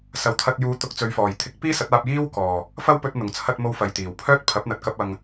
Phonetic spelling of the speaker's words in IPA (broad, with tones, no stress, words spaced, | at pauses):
sɐ˨˩wt̪ʰɐ˨t̚ juː˨˧ t̪ʊ˧k̚t͡sɵ˨˧ɥfɔː˨˩j t̪ʰɪ˨˥k̚ piː˥sɐ˨˥t̚aː˧p̚ jiː˥w kɔː˨˩ | fɐ˥wpɵ˧t̚ n̪ʊ˨˩ŋt͡sʰɐ˧t̚mo˧w fɐ˨jt̪iː˨˩wpʰœː˥t̚ pʰɐ˨˥p̚n̪ɐ˨t̚kɐ˧p̚ ɐ˨ŋ